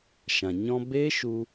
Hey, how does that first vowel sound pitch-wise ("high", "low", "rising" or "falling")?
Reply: low